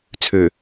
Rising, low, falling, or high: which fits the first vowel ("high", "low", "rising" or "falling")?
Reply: low